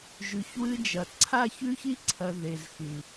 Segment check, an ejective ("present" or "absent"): absent